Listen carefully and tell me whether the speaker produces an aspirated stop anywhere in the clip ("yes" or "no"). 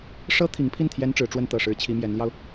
yes